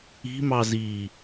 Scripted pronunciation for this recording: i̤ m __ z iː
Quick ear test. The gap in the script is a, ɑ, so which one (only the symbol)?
ɑ